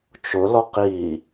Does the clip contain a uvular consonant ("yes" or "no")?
yes